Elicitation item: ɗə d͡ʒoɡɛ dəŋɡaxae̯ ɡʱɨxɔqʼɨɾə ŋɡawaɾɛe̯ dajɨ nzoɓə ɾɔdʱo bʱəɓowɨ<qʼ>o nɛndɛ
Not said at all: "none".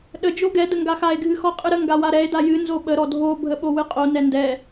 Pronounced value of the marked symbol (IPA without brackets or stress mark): qʼ